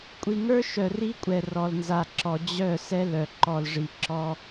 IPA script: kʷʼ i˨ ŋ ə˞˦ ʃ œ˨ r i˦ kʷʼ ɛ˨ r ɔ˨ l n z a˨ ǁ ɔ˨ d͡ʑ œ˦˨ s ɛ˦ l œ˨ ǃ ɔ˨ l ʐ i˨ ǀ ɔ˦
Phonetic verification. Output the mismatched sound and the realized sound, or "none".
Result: ǀ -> ǁ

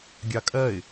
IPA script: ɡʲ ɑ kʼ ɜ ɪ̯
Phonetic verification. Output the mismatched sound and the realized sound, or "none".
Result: none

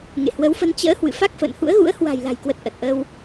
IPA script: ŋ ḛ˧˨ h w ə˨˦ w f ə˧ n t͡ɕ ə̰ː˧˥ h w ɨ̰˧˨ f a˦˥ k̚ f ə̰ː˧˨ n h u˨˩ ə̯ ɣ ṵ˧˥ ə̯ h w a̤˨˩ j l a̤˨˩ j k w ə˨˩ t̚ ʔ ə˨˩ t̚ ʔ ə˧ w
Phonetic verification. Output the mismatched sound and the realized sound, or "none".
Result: u˨˩ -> ṵ˧˥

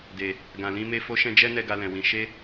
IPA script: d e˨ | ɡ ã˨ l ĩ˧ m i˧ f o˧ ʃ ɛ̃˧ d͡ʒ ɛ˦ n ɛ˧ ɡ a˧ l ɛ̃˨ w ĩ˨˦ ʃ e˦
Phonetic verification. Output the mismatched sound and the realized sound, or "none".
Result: i˧ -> e˧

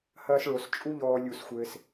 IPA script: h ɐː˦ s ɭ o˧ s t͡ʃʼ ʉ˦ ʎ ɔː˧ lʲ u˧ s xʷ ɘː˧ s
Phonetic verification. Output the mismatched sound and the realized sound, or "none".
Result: ʉ˦ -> u˦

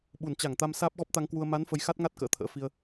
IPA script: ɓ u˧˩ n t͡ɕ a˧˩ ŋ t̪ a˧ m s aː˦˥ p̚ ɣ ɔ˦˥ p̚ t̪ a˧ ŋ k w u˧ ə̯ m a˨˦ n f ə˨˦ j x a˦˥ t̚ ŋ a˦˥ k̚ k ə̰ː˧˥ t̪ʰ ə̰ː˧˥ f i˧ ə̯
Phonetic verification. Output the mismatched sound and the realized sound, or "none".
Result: k̚ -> t̚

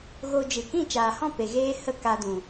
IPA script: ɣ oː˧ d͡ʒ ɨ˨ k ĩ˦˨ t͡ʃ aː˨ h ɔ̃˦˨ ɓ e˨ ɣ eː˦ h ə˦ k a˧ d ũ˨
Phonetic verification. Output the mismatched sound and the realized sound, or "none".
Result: ɓ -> p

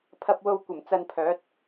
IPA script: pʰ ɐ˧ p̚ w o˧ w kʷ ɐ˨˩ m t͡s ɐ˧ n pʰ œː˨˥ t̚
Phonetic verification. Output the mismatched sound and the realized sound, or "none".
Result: none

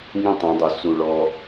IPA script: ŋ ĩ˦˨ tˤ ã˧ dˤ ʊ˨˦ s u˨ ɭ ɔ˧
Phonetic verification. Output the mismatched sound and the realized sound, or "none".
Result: none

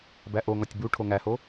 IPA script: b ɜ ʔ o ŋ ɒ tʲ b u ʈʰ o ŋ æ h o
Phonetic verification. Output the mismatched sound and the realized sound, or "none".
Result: ɜ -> æ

